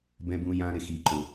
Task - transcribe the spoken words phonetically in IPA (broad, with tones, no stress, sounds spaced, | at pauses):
b ɛ̃˦ b ũ˦ j ã˦ ɾ ɪ˨ x i˨ ǃ ʊ˨